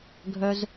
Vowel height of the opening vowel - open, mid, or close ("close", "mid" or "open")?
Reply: mid